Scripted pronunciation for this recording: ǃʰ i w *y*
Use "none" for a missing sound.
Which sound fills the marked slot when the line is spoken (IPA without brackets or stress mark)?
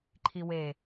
e